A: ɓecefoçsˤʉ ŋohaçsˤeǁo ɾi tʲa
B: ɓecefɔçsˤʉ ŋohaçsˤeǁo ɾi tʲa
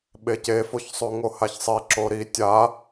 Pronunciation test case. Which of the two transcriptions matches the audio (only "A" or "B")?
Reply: A